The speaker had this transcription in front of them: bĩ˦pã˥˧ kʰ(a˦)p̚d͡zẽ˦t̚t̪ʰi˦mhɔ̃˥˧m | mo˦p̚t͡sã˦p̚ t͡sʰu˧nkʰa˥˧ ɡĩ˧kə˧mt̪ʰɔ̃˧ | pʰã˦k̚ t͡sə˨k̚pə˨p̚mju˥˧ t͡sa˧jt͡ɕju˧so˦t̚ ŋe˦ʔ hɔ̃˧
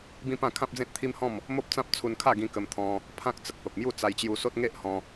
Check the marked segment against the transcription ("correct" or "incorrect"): incorrect